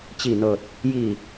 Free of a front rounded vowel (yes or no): yes